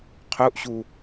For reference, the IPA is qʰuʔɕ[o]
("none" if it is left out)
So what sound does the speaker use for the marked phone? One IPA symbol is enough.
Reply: u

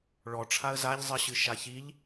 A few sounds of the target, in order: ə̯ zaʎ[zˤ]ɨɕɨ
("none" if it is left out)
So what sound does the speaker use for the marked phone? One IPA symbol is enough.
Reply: zˤ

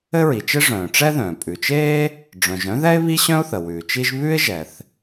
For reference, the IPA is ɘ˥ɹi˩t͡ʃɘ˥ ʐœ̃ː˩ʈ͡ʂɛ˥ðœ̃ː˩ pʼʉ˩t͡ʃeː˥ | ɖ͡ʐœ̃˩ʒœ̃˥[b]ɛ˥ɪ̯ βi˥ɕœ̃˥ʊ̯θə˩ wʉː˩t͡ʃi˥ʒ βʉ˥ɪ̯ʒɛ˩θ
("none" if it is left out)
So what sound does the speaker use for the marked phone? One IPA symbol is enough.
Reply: ð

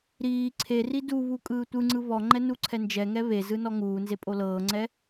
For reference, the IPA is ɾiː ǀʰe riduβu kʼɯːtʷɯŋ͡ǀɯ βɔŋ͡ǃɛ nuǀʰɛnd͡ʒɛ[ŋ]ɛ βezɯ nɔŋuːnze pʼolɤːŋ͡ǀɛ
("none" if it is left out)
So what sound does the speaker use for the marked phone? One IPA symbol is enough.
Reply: ŋ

